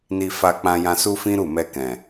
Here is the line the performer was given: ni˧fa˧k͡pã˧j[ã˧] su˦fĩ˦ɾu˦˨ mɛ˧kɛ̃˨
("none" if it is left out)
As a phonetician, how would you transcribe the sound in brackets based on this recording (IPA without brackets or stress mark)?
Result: ã˧